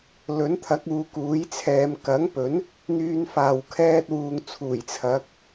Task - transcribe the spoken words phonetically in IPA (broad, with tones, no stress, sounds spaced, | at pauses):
l ɵ˨˥ n t̪ʰ ɐ˨˥ k̚ uː˨ k uː˨˥ j t͡sʰ ɛː˨˧ m k ɐ˨˥ ŋ p ɵ˨˥ n | n̪ yː˧ n f aː˨ w kʰ ɛː˧ t̚ w uː˨ ŋ t͡sʰ uː˨˩ j t͡sʰ ɐ˨˥ k̚